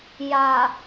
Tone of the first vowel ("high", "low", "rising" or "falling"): low